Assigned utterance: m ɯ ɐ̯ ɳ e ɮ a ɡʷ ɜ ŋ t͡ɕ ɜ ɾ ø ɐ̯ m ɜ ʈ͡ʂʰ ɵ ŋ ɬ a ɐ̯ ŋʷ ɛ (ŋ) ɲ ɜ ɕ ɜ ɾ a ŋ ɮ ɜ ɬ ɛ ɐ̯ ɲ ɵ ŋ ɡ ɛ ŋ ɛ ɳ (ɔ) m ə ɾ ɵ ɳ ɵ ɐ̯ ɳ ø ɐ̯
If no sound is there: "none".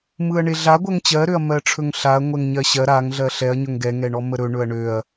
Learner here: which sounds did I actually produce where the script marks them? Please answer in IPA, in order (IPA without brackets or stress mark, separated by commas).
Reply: ŋ, ɔ